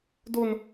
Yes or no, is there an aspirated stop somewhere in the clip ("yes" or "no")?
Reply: no